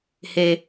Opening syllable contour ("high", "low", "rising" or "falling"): low